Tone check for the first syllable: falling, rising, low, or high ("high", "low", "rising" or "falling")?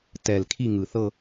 low